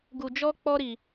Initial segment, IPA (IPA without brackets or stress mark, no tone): ɡ